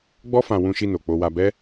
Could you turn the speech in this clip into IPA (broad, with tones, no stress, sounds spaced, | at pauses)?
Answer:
ɡ͡b ɔ˦ f ã˧ w ũ˧ ʃ i˧ n o˨ k͡p o˧ w a˧ b ɛ˦